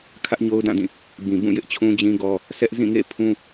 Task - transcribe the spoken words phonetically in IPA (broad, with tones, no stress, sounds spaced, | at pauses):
kʰ ä˦ ʔ ɲ o˦ ʊ̯ d ã˦˨ d ĩ˦˨ | b ĩ˨ b ũ˦˨ j ɪ˦ ʔ t͡ɕʰ ũ˦ d͡ʑ ĩ˦ ɡ ɔ˦ | sʰ ɛ˦ ʔ z ĩ˦˨ ŋ ḛ˦˨ pʰ ũ˦